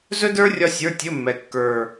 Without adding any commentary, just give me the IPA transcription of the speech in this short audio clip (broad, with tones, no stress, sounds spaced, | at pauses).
z ɵ˥ d ə˞˥ rʲ ɒ˥ sʲ ə˞˧˥˧ tʲ ɵ˧˥˧ mː ɛ˨˩ kː ə˞˨˩